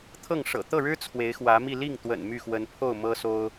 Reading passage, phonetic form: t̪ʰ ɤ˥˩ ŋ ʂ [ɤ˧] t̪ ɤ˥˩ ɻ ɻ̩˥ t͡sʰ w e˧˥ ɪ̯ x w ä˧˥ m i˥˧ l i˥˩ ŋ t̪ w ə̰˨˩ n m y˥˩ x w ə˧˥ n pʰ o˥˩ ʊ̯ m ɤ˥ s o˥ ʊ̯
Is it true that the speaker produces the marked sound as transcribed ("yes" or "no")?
no